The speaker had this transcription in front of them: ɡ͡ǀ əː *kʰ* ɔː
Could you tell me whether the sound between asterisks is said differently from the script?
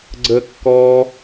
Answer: yes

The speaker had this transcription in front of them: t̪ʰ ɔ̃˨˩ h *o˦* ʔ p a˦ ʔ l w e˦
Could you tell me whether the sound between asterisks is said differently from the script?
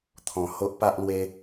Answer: no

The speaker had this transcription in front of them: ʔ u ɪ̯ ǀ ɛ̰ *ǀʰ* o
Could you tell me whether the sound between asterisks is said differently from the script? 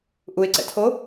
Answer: yes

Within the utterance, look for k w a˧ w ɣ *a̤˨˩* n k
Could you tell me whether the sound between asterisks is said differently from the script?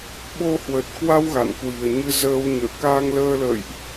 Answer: yes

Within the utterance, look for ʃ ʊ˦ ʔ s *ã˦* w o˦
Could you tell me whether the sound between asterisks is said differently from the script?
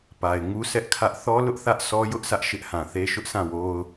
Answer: yes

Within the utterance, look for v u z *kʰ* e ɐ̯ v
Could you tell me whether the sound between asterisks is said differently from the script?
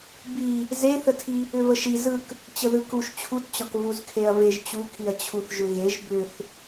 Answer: no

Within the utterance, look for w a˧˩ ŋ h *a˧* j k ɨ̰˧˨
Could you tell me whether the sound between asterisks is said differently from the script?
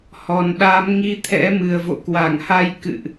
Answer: no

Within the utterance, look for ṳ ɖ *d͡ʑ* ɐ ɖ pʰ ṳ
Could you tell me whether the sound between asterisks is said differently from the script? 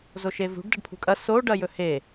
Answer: yes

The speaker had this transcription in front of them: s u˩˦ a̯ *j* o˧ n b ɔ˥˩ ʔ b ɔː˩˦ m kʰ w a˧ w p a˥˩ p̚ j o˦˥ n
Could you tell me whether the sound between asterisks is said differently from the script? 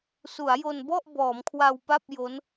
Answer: no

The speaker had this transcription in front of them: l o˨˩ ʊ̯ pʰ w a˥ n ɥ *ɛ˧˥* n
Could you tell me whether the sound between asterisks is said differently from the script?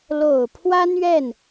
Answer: yes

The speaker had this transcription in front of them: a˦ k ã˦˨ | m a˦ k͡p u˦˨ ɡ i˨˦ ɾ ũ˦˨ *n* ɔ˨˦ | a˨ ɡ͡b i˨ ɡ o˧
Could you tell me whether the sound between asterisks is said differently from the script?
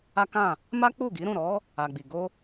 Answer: yes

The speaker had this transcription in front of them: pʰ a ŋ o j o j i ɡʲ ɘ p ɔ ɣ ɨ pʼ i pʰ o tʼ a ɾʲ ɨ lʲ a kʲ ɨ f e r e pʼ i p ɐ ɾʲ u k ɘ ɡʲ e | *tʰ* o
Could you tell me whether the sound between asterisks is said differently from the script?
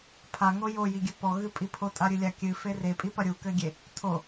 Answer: no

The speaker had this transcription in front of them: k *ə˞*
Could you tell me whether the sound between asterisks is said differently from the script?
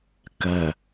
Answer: yes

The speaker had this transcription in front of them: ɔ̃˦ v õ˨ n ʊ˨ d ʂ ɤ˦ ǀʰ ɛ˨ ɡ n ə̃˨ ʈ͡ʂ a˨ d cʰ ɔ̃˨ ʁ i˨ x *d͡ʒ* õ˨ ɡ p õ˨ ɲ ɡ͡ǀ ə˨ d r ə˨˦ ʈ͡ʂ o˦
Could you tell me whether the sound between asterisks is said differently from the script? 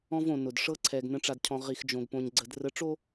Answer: no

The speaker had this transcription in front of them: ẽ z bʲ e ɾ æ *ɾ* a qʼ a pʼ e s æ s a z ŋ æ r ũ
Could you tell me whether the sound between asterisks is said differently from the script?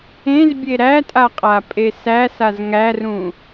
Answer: yes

